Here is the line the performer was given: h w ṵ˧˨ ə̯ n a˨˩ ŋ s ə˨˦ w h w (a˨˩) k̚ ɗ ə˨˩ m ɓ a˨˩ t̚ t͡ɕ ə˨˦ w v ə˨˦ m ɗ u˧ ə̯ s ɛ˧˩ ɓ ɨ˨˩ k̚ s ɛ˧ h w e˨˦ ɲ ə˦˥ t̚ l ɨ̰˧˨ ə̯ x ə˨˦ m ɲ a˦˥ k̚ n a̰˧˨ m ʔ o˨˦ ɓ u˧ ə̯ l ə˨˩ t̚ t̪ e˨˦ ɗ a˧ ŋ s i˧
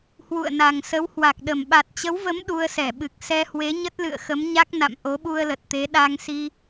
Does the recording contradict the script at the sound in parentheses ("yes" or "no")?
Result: no